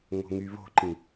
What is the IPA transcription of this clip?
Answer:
ŋ o̤ ŋ y β o̤ ǃ ĩ

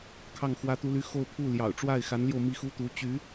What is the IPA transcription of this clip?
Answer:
kʰ ɑ˥˩ ŋ x w ä˥ t̪ u˥ l y˥ x o˥˧ ʊ̯ pʰ u˥˩ l j ɑ̰˨˩ ʊ̯ ʈ͡ʂ w a˥˩ ɪ̯ x a˧˥ n l j o˧ ʊ̯ m i˥˩ x u˥ t̪ u˧˥ t͡ɕ y˧˥

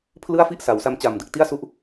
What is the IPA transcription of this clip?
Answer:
pʰ l ɯ˥˩ a̯ f i˥˩ ʔ s a˩˦ w s a˧ m t͡ɕ aː˨˩ m d ɯ˨˩ k̚ t i˥˩ a̯ s u˥˩ ʔ

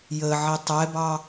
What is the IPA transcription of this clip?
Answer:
j ə ʕ i tˤ ɛ b ɑ

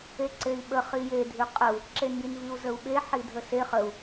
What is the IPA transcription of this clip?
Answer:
e ǀ e i̯ ɓ ə χ i j e dʱ ʉ qʼ ə u̯ | ǁ e n j i n v i u̯ z ə u̯ ɓ e ħ i dʱ ə s e χ ə u̯

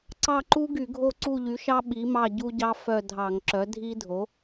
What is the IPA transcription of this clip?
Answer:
ǀ ɑ˦˨ ǃ u˦˥ ɡ y˧˩˧ ɡʱ o˦˨ ǀ u˦˨ ʎ y˩˥ ʃ ɑ˦˥ ɓ i˩˥ m ɑ˦˨ ɟ u˦˥ ɟ ɑ˦˥ f œ˦˨ dʱ ɑ˧˩˧ ŋ ǁ œ˩˥ dʱ i˦˥ dʱ o˩˥

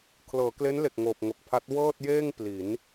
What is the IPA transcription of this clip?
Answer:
kʰ l ɤː˩˦ k l e˦˥ n l e˨˩ k̚ ŋ oː˨˩ p̚ ŋ o˨˩ k̚ pʰ a˦˥ t̚ w ɤː˥˩ t̚ j eː˥˩ ŋ p l i˩˦ n

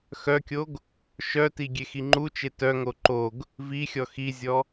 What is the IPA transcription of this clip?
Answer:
x œ kʲ o ɡ | ʃ œ t i ɡʲ e x i ŋ͡ǃ u t͡ʃ e t œ ŋ o ǃ o ɡ | v i xʲ ɔ x i zʲ ɔ

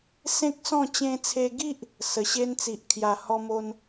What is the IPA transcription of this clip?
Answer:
s ẽ˦ k̚ s ɔ̃˥˧ t͡ɕ ẽ˧ t͡sʰ e˧ ɡ i˦ ʔ | s ə˨˩ ɕ e˦ n t͡s i˨ ʔ kʰ j a˨˩ h ɔ˧ m o˧ n

